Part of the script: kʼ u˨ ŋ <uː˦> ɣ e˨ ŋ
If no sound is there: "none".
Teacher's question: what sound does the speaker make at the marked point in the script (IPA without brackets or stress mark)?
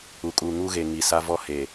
u˦